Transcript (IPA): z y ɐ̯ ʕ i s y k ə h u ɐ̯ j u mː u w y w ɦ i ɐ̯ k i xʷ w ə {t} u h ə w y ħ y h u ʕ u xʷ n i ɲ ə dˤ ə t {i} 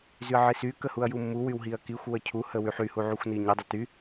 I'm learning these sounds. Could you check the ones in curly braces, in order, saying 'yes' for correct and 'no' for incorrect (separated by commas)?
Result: no, no